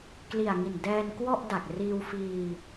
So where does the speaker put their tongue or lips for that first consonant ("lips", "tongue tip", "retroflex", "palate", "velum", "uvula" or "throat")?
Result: velum